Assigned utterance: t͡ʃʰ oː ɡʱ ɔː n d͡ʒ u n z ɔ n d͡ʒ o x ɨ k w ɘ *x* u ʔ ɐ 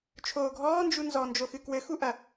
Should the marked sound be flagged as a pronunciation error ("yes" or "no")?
no